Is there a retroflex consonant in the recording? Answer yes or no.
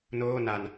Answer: no